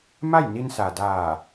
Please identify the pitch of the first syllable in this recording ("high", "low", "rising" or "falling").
falling